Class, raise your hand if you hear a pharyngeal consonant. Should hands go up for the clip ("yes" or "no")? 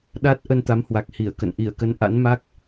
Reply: no